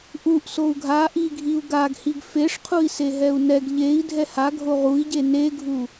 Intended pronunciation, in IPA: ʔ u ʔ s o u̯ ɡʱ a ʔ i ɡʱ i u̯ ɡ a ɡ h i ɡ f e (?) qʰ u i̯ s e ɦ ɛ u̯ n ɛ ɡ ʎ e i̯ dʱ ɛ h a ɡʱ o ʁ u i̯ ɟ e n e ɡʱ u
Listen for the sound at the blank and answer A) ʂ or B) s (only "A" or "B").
A